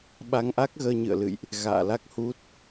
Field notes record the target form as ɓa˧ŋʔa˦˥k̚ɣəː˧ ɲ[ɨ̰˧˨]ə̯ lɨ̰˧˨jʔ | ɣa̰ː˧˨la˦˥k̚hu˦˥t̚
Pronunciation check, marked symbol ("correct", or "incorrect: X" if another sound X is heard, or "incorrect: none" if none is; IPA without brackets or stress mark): correct